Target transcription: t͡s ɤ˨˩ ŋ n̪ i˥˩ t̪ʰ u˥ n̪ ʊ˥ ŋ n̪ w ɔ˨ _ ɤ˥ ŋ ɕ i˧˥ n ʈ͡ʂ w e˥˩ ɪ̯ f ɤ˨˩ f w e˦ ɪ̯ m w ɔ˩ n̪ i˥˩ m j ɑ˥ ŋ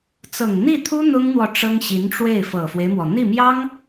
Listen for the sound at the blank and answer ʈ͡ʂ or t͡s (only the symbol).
ʈ͡ʂ